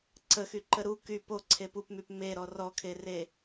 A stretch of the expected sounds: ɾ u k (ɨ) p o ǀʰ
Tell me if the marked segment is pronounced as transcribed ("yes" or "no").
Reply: no